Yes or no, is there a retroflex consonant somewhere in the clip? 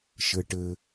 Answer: yes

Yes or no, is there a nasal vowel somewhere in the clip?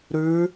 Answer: no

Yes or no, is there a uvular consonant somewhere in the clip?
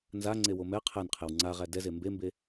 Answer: yes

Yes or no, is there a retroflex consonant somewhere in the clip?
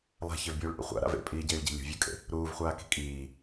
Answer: yes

